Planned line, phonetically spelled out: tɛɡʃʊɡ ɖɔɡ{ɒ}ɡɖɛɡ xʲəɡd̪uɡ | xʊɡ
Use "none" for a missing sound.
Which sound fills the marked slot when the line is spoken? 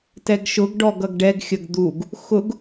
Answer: ʌ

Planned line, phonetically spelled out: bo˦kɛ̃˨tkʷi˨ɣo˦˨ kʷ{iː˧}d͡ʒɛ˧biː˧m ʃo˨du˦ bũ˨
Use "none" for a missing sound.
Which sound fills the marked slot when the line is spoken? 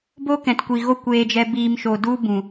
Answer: eː˧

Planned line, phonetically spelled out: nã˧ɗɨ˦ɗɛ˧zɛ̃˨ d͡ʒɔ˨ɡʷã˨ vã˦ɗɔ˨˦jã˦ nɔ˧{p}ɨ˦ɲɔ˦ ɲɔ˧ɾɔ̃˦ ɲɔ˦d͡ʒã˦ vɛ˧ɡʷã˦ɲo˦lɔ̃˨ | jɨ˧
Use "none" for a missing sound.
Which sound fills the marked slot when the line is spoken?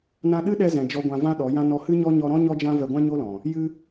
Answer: h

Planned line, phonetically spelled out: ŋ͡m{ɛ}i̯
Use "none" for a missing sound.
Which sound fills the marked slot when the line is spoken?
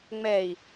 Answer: ɛ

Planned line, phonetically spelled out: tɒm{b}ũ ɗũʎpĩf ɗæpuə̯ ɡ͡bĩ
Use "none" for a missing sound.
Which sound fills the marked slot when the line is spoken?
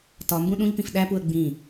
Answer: b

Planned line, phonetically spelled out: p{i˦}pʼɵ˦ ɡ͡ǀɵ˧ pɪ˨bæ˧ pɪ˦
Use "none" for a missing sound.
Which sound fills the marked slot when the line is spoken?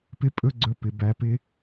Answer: ɪ˦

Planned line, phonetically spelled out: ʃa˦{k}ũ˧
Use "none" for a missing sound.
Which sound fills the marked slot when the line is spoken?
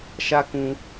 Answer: k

